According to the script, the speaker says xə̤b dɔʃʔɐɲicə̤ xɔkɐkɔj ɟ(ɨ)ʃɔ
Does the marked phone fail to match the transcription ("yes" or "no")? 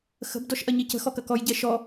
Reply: yes